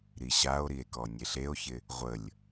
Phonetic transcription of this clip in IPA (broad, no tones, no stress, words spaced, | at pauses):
ɾiɕao̯ɾie̯ kɔnʲeɬeo̯çɪ | ʁʷəlʲ